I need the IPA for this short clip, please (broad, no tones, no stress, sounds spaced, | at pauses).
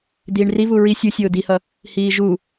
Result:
d̪ iː ɳ r i v u ɹ i sʲ u sʲ ʊː d̪ i h ʌ | h iː ʒ u